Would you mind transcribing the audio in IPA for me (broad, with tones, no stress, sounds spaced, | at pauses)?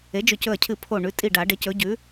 e˩˥ d͡ʒ ɵ˧˩ c ɵ˧˩ ɐ̯ cʰ ɨ˧˩ pʰ o˧˩ ɳ ʉ˩˥ tʼ i˧˩ ɖ a˨˩˦ ɖ e˩˥ c ɵ˩˥ ɟ ʉ˩˥